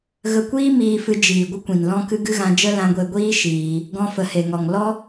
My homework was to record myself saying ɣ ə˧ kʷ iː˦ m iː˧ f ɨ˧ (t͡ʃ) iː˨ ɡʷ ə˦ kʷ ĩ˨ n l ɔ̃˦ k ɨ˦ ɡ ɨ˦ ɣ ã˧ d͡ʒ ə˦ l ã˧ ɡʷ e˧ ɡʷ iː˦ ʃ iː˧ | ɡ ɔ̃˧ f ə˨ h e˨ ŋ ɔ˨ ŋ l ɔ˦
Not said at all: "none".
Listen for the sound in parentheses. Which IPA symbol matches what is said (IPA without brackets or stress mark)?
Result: d͡ʒ